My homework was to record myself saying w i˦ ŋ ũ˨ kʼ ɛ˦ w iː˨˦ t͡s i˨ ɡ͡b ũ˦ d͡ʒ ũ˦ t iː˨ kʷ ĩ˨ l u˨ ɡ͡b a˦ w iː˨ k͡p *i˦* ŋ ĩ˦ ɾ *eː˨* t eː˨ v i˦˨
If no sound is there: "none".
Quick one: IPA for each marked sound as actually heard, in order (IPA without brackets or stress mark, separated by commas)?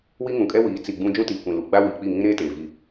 i˦˨, eː˦